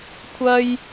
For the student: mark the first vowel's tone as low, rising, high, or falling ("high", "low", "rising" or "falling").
high